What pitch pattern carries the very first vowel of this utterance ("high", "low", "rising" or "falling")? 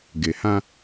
low